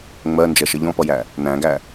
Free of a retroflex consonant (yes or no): yes